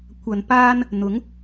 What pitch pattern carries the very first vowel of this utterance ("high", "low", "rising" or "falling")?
low